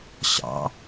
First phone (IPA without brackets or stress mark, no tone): ɕ